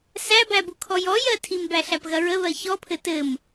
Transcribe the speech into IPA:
sæbæbukʰɔ jɔjɜ tʰimbæɬæpɣɐ ɹəβɜ çɔpʰɘ tɘm

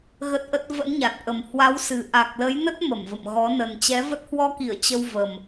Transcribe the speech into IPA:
ɣə˦˥t̚ʔə˦˥t̚ və̰˧˥nɲa˨˩t̚ʔə˨˩m hwa˨˦wsɨ˨˩ ʔa˨˩k̚lə˨˦jnə˦˥t̚ mə˧˩mvə̰˧˨mɣɔ˨˦ nə˨˩nt͡ɕɛ˨˦və˦˥t̚ hwɔ˧ki˧˩ə̯ t͡ɕə˧wvə˨˩m

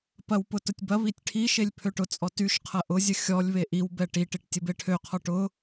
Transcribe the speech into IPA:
pɐwpʊ tʊtʲbɐβitʲ ʈʰiʃelʲ pʰøʈʊt͡sʼɔ tyʃ qʰɐʔʊzʲə xʲɔlʲ βeʔiwbɛ ʈiʈiʈ tʲəbeʈʰøqʰɔ ʈʊ

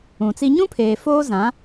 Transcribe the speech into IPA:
ũ˨t͡si˦ ɲũ˦pʰeː˨ foː˦zã˨˦

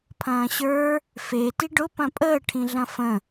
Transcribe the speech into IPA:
pʰɐ̃ːɕə˞ | fe tiɖʊ pɐ̃pʼəː ʈʰĩɮɐ̃fə̃

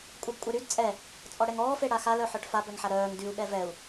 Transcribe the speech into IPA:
kʷʼɛbkʷʼɛɾyd t͡sʼɛ | t͡sʼɔɽɛŋɔː feɽaxa lœħœʈfa bœŋħaɾœːŋ dyu̯ ɠɛvɛu̯

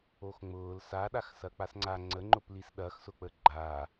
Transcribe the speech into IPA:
oxŋ͡mʊːl saɗaxsɐ k͡pasŋ͡ǀa ŋ͡ǀəŋ͡ǃʊplis ɗɐxsʊk͡pə ɡ͡ǃa

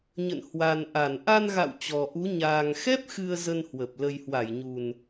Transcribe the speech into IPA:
ɲə̰˧˨nhwa˨˩nʔa˧˩n ʔa˧nɣa̰˧˨w t͡ɕɔ˨˩ʔu˨˦ ɲaː˨˩ŋxɛ˦˥p̚ xɨ˧ə̯zə˧nhwə˨˩p̚ lə˨˩jhwa˧˩jɲu˨˩n

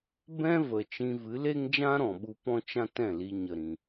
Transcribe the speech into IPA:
bɛ̃˦ və˨t͡ʃĩ˧vɨ˨˦le˦ŋ d͡ʒã˦ɾɔ̃˨ɓu˧ pɔ̃˦t͡ʃã˦ tɛ̃˦˨li˧ɲə˨ɾĩ˨

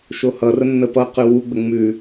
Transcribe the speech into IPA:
ʃohʌrə nːəpʌqʉ wuɡ͡bə ŋ͡mʉ

